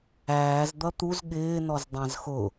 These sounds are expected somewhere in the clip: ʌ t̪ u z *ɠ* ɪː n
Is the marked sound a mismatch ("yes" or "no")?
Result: no